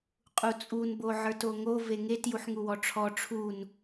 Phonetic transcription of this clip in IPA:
qʼut͡sʼun boʕə˞toŋo veŋet juħŋuwɔʈ͡ʂʰɔ ʈ͡ʂʰun

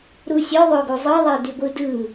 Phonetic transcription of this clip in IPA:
ɾusʲø ðˤøɡuzˤɯ ðˤedyɡʷɯdɯ

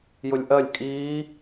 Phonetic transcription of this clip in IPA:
jʊlʲʔɜlʲ kʼiː

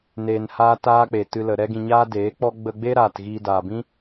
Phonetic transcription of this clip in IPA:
neː˧nhaː˦taː˦k͡pe˨ tɨ˧lə˨ ɾɛ˦ɡĩ˧ɲaː˦ deː˨˦k͡pɔ˦ ɡ͡bə˧ɡ͡be˦ ɾaː˨t ɣiː˧daː˨bĩ˦

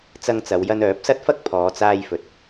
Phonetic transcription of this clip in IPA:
t͡sɐ˧ŋt͡sɐ˨˧wjɐ˧n œː˨˥p̚sɐ˥t̚fɐ˥k̚ pʰɔː˨˧t͡saː˧jfɵ˨t̚

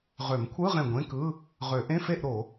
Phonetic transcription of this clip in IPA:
ʁø˨˩˦mkʷʰɯ˧˥˧ʁẽ˧˩ ɡʷẽ˧˥˧kɯ˧˥˧ | ʁø˨˩˦ʔẽ˧˥˧fe˥˨ʔ ɾo˨˩˦

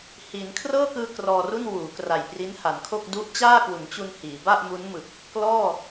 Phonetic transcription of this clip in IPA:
hiː˩˦nkʰrɤː˥˩kɯː˧ krɔː˧ru˥˩n wuː˩˦ kra˨˩jpri˦˥nha˩˦nkʰo˥˩k̚ du˦˥ʔt͡ɕaː˥˩kwu˩˦nt͡ɕu˧n hiː˩˦ba˥˩ʔmu˦˥nmɯ˨˩k̚ | klɔː˥˩

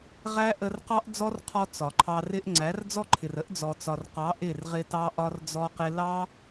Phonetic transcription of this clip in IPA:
ʁæ˦ ʔə˧rqɑ˦ʔd͡zɔ˦rqʰɔ˧ t͡sɒ˨ǃʰɑ˧ rɪ˧ʔ ŋ͡ǀæ˨˦rd͡zɔ˦ǃʰɪ˨rə˦ʔ d͡zɔ˨t͡sɒ˨rqɑ˨˦ ʔɪ˦˨rʁɪ˧tɑ˦ ʔɒ˧rd͡zɔ˧qɪ˧ lɑ˦

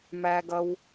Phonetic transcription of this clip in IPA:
mæ˧ɡʌ˧w

